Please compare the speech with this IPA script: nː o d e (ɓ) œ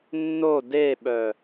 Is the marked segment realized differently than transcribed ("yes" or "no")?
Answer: no